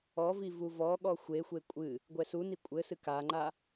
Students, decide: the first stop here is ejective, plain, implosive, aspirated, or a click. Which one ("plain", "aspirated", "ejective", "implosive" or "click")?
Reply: implosive